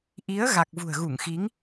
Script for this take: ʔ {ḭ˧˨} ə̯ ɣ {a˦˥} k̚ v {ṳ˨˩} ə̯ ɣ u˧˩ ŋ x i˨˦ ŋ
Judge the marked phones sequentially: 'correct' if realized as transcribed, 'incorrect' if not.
incorrect: i˨˦, incorrect: a˨˩, correct

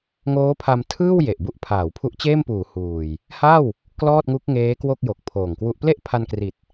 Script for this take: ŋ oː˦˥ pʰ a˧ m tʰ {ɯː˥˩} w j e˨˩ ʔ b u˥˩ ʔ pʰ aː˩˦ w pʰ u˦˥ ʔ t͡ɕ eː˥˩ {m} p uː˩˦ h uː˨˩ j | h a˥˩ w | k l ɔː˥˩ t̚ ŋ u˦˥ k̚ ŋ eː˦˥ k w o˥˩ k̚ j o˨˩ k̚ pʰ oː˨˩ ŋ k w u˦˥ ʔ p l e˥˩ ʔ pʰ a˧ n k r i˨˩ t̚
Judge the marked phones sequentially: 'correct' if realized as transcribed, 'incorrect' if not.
correct, correct

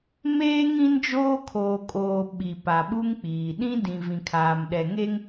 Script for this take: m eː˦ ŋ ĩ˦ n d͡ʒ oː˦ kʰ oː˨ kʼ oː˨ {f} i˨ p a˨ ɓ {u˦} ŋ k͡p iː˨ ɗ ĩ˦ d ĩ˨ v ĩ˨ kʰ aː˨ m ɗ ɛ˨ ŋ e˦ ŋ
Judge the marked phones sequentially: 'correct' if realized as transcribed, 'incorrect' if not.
incorrect: ɓ, correct

